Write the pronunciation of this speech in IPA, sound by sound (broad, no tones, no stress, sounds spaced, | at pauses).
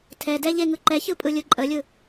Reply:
tʰ ɛ d ɛ ʎ e ŋ ɯ ǃ ɛ ç ɯ pʼ ɯ lʲ ɯ ǃʼ ə lʲ ɯ